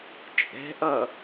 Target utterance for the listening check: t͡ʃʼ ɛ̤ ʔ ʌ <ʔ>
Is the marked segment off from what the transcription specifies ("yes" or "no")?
yes